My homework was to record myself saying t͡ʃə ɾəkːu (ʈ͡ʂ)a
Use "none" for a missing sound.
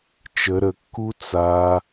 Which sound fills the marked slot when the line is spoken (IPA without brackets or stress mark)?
t͡s